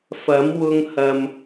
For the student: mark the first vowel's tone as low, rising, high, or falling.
rising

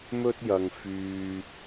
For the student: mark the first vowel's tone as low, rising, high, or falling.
high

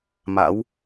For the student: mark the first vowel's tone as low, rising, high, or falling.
rising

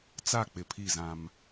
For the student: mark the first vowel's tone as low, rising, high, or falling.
falling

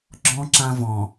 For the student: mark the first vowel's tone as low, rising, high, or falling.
high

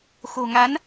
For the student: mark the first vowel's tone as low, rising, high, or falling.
low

